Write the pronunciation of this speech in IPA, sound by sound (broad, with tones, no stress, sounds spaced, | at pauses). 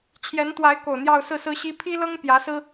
t͡ɕʰ j ɛ˧˥ n t̪ w a˧˥ ɪ̯ k o˨˩ ʊ̯ n̪ j ɑ˥˧ ʊ̯ s ɹ̩˥˩ s ɹ̩˥ ɕ i˥ pʰ i˥ l ɤ˥ ŋ p j ä˧˥ s ɹ̩˥